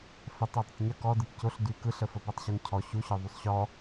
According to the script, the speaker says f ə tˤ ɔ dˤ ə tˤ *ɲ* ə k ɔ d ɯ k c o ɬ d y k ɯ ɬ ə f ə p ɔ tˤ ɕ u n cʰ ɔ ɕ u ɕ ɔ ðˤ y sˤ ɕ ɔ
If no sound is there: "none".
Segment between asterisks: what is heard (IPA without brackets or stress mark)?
ɲ